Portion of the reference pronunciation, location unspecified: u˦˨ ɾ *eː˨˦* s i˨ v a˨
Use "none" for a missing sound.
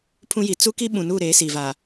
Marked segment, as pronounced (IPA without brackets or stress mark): eː˨˦